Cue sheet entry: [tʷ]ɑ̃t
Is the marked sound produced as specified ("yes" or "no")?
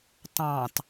no